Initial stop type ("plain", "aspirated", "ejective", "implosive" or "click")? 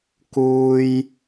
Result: plain